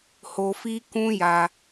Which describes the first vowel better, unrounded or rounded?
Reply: rounded